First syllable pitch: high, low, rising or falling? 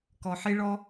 low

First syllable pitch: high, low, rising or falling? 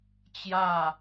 falling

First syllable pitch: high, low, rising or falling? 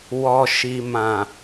low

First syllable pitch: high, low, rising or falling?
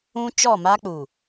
high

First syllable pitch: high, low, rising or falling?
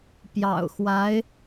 low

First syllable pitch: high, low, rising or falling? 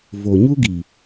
low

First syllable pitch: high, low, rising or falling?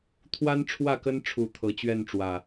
high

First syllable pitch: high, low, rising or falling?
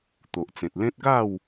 low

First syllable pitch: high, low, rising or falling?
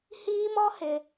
high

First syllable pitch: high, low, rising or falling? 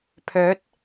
rising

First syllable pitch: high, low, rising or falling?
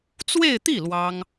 falling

